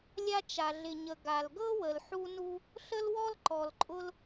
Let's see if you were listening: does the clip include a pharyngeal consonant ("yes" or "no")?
yes